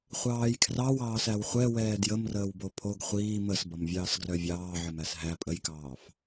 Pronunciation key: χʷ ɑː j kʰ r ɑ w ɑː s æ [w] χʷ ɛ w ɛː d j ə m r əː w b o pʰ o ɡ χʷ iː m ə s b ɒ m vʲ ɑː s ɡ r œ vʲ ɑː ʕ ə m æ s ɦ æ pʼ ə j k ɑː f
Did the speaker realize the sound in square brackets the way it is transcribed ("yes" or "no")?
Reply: yes